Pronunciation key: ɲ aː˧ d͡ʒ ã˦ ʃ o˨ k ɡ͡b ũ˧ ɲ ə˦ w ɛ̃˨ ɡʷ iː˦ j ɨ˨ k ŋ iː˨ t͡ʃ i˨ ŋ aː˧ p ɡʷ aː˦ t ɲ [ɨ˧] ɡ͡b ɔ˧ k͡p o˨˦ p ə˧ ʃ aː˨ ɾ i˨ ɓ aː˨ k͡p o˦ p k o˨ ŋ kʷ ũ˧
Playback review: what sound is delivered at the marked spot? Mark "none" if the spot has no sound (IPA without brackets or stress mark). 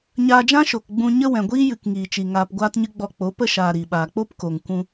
ɨ˦